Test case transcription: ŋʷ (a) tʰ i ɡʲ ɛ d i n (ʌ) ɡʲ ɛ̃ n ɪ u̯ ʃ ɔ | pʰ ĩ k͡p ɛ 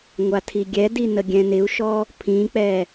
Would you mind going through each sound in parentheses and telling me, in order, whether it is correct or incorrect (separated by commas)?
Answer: correct, incorrect